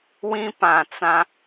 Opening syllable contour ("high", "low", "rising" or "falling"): high